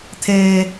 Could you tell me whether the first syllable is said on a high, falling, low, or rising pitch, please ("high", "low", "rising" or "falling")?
high